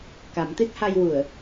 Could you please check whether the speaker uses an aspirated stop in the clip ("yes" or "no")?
no